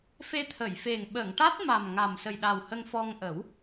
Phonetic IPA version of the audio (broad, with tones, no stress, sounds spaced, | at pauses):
f e˧ t̪ʰ ə˨˩˨ j f e˨˩ ŋ ɓ ə˨˩˨ ŋ ʈ a˦˥ t̚ m a˨˩ m ŋ a˨˩ m s ə˨˩ j ɗ a˨˩ w h ə˧ ŋ f ɔ˧ ŋ ʔ ə˨˩˦ w